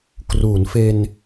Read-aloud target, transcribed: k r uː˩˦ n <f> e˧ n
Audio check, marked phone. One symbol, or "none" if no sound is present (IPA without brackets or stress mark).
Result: f